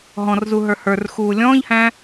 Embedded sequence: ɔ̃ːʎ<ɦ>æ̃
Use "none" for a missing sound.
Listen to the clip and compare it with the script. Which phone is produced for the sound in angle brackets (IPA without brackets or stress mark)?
h